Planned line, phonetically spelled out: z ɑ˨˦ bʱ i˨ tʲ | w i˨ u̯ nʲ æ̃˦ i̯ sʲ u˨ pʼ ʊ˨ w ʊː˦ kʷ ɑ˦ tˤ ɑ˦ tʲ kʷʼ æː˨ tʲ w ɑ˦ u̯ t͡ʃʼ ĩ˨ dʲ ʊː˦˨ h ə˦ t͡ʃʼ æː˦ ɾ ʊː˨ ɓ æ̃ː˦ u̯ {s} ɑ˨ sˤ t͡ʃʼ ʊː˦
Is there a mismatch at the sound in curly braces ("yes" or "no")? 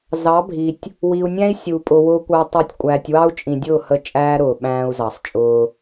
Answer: yes